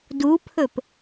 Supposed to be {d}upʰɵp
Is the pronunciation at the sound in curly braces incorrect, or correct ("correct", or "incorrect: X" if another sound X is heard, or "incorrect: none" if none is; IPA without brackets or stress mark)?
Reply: correct